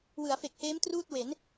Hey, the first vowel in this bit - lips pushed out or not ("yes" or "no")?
no